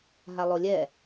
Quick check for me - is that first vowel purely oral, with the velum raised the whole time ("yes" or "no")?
yes